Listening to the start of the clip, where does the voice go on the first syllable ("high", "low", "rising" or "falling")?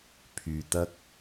low